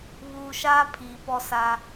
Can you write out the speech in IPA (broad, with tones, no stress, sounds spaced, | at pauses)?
β uː˨ ʃ aː˦ pʰ iː˨ p ɔ˦ s a˦